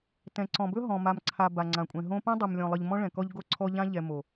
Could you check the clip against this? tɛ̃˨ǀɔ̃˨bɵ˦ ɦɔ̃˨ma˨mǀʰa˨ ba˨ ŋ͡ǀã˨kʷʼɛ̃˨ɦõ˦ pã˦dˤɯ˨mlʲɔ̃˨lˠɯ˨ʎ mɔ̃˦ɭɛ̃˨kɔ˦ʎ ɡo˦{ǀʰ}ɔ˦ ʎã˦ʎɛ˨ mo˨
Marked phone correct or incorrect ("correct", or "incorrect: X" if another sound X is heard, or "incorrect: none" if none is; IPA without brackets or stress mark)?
correct